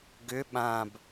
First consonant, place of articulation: velar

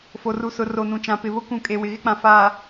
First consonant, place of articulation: labial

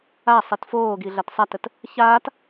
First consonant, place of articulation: alveolar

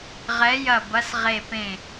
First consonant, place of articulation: uvular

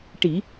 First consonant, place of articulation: retroflex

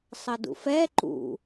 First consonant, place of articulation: alveolar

